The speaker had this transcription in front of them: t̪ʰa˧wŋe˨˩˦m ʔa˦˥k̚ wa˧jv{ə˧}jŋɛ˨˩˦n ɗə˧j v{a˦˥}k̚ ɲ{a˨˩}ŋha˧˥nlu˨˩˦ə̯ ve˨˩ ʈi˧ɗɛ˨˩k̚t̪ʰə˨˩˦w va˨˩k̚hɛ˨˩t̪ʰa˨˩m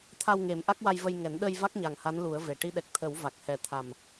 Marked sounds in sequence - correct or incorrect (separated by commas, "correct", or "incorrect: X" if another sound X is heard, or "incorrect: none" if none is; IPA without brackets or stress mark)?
correct, correct, correct